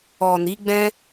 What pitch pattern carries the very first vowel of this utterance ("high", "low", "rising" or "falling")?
low